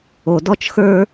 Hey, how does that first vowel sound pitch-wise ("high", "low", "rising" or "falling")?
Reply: low